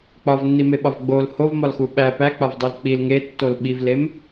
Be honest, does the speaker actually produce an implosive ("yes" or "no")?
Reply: yes